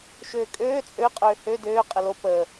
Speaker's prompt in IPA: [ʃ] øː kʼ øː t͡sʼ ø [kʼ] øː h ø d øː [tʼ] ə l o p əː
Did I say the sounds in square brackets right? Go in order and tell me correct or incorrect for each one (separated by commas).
correct, incorrect, incorrect